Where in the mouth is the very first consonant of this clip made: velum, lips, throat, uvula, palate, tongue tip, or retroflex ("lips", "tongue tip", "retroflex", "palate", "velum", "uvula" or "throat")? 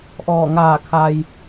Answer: throat